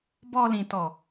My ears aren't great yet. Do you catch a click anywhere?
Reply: no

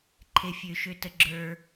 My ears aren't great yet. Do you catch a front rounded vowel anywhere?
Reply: yes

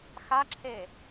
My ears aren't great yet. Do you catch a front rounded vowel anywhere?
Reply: no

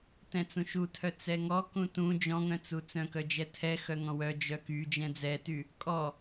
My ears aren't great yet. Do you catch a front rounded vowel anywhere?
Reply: yes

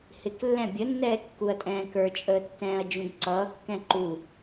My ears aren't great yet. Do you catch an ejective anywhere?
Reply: yes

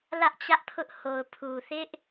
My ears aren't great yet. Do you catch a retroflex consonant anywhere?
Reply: no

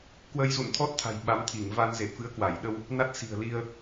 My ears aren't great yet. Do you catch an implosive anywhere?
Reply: yes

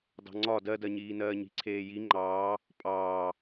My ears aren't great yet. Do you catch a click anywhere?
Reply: yes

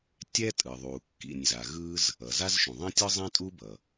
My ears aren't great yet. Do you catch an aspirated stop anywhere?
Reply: no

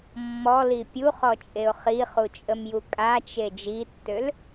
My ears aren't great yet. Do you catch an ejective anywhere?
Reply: yes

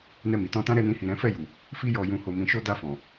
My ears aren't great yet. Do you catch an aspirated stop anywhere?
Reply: no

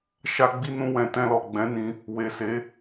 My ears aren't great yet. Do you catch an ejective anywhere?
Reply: no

